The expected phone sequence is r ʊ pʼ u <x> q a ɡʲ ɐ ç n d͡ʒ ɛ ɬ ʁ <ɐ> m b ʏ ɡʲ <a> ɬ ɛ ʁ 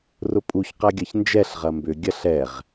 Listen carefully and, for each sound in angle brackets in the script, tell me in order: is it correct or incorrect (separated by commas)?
incorrect, correct, incorrect